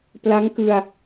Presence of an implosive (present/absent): absent